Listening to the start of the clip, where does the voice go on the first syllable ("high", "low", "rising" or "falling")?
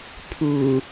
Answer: low